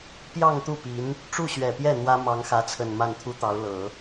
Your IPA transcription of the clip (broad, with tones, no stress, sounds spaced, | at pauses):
p j ɑ˥˧ ŋ t̪ u˥˩ p i˧˥ n | ʈ͡ʂ u˥˩ ɕ ɥ ɛ˨˩ p j ɛ˥˩ n̪ w ä˥ m ɑ˧˥ ŋ x ä˧˥ t͡sʰ ə˨˩ n m a˥˩ n t̪ʰ u˥ t̪ ɑ˧˥ ʊ̯ l ɤ˨˩˦